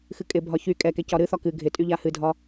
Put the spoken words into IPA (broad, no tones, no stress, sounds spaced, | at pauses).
x ɨ kʼ ɪ bʱ ɒ ç y kʼ ɛ k ɛ c ɒ ɾ ɨ θ ɒ k ɨ ɡʱ ɪ tʼ y ʎ a h ɨ dʱ ɒ